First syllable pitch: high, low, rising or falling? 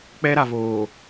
high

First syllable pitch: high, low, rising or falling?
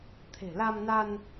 low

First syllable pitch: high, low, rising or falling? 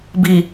low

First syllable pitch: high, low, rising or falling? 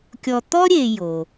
low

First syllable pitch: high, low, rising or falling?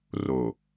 low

